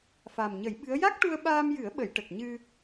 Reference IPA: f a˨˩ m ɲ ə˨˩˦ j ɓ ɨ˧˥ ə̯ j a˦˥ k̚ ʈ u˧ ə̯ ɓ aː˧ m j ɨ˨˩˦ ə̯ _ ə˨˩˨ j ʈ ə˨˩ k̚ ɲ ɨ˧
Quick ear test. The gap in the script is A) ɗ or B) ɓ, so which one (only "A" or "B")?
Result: B